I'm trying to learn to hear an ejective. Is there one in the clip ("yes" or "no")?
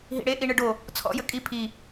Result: yes